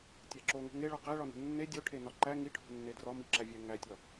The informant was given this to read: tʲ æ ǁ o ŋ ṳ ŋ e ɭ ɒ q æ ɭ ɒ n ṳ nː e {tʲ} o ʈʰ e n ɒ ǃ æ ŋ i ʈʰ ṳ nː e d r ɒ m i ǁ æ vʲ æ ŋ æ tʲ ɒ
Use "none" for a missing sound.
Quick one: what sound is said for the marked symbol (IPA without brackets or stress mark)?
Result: dʲ